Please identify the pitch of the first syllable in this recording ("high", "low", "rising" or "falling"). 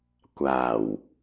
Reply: low